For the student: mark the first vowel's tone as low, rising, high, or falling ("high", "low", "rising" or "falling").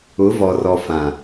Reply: rising